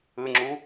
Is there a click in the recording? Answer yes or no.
yes